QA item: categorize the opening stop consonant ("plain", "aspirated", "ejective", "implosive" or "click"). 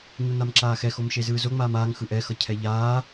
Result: click